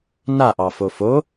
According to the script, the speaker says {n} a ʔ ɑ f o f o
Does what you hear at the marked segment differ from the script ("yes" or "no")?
no